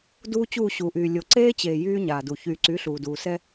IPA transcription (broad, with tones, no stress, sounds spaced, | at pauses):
d uː˦ t͡ɕ uː˦˨ ɕ uː˨ ʔ yː˨ lʲ o˨ ǀ eː˦ t͡ɕ eː˨ j yː˦ ɲ aː˨ d u˨ ç yː˨ ǀ y˨˦ ɬ uː˨ d uː˨ s ɛ˦